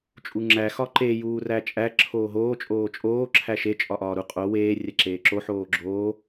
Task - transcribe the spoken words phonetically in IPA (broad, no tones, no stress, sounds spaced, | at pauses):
t͡ʃʼ u ŋ͡ǁ æ x ɒ ǃ e j uː r æ t͡ʃʼ æ ǁʰ oː ɦ oː t͡ʃʼ oː t͡ʃʼ oː ǁʰ æ ʃ e t͡ʃʼ ɒ ʔ ɒː ɾ u qʼ o w eː rʲ æ ǁ eː ǁ o ħ oː ɡ͡ǁ oː